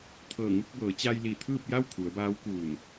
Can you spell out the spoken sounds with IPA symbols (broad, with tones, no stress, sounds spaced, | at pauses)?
t̪ʰ ɤː˧˩ ŋ u˥˨ k̚ b ɤː˩˧ t͡ɕ a˧ j l i˧˩ t̪ʰ ɯː˥˨ p̚ j a˥˨ w kʰ u˩˧ ə̯ b aː˧˥ w k uː˧˩ n